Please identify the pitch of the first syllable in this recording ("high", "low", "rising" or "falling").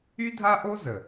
high